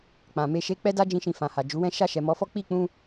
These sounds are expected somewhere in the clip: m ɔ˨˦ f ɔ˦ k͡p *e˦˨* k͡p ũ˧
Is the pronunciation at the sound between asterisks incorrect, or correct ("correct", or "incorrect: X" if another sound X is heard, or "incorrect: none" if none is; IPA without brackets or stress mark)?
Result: incorrect: i˦˨